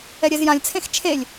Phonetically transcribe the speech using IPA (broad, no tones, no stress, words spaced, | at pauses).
ɛɾʲɛzjãlʲt͡sʰẽx t͡ʃʰelʲ